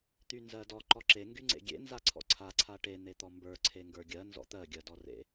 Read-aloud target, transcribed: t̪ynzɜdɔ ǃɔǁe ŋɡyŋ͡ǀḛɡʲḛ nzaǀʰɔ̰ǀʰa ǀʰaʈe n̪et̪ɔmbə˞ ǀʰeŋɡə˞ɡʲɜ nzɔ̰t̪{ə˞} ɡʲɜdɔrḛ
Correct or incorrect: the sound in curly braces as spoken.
incorrect: ɜ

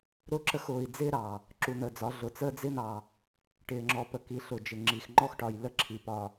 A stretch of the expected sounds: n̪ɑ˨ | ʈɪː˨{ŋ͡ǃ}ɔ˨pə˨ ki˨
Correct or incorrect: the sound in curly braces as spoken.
incorrect: ŋ͡ǁ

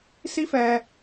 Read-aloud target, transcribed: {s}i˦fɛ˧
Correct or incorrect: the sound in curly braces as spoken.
correct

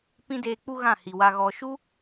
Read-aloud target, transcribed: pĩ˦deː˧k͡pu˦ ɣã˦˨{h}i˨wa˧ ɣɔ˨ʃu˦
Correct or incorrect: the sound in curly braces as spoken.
correct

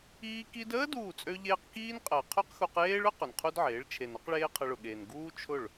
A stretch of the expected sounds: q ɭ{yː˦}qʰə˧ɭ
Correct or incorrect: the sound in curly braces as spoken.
incorrect: eː˦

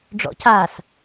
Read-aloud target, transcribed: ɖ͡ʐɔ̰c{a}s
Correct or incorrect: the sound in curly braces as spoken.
correct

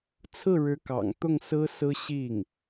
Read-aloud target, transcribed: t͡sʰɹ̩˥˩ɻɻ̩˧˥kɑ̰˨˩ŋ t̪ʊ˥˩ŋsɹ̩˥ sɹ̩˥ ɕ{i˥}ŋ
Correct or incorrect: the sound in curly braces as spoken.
incorrect: i˥˩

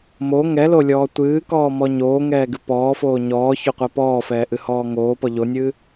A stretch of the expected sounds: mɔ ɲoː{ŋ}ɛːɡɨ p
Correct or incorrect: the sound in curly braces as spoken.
correct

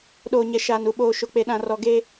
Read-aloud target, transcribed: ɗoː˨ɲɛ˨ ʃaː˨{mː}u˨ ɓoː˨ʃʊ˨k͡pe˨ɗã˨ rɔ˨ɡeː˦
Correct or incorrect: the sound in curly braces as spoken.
incorrect: n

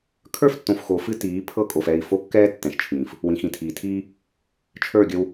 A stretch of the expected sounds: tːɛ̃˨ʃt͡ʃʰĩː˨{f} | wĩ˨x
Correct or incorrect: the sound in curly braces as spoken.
correct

